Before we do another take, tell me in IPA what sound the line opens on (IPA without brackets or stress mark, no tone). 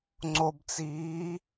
ŋ͡ǀ